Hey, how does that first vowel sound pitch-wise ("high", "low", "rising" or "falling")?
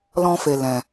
high